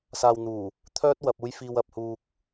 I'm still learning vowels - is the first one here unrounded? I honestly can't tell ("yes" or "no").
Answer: yes